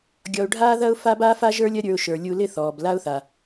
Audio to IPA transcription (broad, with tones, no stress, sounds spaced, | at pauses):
ɡʲ ɔ˧ ʊ̯ ɖʱ aː˦ ð ɐ˦ ʊ̯ f a˦ b aː˦ f a˦ ʒ ə˞˦ lʲ ɐ˦ ɾʲ ə˞˧ ʊ̯ ʃ ə˞˨ lʲ u˧ l ɪ˦˨ θ ɔː˨ b l a˦ ʊ̯ θ a˨